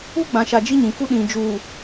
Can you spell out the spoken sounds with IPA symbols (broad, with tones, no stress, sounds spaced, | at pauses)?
u˦ ɡ͡b ã˨ ʃ a˨ d͡ʒ i˦ ɲ ĩ˨ k u˦ ɗ ĩ˨ d͡ʒ u˨